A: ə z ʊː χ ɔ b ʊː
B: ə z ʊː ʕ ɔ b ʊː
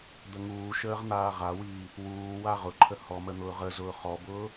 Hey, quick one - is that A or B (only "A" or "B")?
A